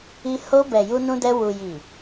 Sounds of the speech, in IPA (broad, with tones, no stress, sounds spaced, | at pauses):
i˧ h o˧ b ɛ˨ j u˧ n ũ˧ d ɛ˧ w u˨ j i˨